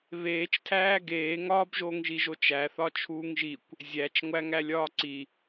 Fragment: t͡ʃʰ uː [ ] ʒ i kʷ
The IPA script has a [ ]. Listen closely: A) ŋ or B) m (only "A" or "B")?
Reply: A